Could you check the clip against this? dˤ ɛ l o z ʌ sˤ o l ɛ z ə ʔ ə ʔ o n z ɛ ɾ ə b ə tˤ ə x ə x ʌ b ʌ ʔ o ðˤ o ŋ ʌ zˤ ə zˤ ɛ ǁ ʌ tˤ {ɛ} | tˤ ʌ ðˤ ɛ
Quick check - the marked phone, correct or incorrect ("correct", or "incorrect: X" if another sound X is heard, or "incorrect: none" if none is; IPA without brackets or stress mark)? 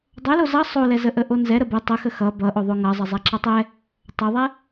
correct